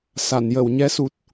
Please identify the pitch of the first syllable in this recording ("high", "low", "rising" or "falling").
low